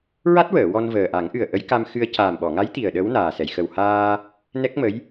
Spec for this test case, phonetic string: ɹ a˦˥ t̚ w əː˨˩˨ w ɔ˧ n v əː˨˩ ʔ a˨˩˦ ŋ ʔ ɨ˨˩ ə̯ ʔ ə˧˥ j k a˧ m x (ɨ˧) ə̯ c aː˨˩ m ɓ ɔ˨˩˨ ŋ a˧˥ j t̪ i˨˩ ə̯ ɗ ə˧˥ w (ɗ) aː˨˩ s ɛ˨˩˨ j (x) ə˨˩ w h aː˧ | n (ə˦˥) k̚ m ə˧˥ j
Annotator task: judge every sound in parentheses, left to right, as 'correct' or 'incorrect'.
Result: correct, incorrect, correct, incorrect

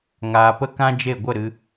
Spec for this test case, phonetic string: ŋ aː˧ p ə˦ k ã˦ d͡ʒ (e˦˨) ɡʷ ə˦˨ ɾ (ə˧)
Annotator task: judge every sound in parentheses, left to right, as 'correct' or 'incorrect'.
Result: correct, incorrect

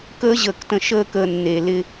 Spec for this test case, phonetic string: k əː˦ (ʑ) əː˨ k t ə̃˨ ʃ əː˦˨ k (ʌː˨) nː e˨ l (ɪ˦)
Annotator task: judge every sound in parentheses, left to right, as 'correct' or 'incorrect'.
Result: correct, incorrect, correct

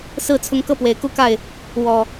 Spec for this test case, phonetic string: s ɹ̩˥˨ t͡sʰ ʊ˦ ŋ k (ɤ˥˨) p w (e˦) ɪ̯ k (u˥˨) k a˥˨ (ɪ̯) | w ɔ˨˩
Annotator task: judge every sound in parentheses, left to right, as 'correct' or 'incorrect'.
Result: correct, incorrect, correct, correct

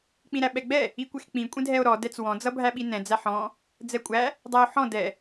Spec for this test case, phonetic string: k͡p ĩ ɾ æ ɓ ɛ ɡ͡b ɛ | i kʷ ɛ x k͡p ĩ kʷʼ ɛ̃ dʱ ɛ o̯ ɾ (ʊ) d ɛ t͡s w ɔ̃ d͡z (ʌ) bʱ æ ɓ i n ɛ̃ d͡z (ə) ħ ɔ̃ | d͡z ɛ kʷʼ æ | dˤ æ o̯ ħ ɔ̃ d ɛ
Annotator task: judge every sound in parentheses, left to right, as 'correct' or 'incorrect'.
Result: incorrect, correct, incorrect

